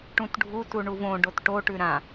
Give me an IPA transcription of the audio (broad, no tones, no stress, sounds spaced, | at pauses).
ʈ ũ t ɖʱ u t u ɳ u v õ ɖ o t ʈ o ʈ ʉ ɾ ã